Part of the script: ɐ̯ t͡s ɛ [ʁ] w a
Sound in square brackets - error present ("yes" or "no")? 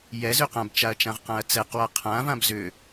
yes